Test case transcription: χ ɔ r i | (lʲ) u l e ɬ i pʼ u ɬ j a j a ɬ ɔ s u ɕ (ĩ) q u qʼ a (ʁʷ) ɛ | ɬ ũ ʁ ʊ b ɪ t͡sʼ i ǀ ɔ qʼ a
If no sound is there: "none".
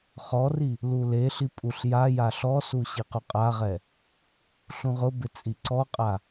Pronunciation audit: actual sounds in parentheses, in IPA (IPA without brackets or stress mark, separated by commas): l, i, ʁ